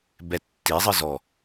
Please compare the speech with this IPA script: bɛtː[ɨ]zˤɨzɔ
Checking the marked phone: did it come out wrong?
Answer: yes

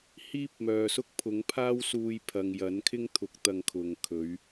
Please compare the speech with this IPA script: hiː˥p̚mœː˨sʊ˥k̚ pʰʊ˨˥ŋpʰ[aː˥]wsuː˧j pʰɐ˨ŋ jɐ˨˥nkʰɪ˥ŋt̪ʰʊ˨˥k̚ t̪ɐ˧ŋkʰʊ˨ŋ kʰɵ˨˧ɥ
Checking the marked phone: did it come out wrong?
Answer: no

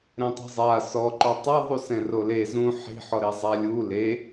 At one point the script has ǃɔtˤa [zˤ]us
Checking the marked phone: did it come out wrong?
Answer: yes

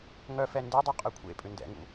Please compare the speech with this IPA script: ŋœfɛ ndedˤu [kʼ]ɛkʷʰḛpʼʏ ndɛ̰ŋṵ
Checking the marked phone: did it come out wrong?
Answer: yes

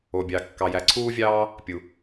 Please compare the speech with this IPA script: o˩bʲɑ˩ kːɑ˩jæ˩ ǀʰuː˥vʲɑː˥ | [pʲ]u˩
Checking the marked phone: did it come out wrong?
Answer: no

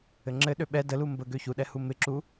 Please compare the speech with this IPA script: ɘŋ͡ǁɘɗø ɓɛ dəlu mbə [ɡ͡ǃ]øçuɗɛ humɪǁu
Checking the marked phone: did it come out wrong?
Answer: yes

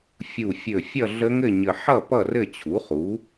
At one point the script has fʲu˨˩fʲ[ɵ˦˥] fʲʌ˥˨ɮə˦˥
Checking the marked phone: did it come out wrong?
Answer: yes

